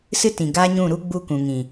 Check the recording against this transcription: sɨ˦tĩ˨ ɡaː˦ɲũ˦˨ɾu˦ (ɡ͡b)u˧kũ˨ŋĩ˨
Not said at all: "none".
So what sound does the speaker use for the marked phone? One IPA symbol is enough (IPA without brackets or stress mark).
ɡ͡b